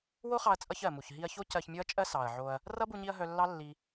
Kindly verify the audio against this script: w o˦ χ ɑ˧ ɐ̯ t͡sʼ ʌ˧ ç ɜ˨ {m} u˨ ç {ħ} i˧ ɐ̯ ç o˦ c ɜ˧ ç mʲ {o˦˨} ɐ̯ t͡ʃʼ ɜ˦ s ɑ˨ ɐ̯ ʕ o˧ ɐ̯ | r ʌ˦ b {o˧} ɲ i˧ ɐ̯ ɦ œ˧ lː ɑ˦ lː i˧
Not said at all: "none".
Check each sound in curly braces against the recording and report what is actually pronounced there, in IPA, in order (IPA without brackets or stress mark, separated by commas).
m, ɦ, o˦, u˧